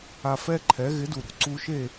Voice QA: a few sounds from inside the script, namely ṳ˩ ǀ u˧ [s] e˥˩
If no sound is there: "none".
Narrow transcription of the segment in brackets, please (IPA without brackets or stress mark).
ʃ